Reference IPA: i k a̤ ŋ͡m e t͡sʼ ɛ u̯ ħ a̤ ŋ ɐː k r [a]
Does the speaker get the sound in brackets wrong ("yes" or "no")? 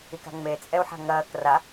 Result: no